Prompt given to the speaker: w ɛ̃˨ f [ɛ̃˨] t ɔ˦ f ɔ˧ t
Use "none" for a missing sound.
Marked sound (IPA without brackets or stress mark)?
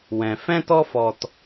ɛ̃˦